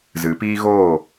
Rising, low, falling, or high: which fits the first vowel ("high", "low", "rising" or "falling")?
rising